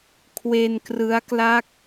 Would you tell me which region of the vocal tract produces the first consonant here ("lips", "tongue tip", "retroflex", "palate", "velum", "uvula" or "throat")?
velum